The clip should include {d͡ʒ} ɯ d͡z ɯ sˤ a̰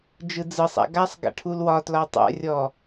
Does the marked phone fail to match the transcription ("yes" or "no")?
no